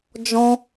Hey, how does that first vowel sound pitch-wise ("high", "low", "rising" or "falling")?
high